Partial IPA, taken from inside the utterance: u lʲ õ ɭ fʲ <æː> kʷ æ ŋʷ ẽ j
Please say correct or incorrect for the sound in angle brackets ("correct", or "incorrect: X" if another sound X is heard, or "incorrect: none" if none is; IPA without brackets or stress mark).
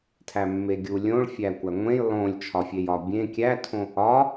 incorrect: æ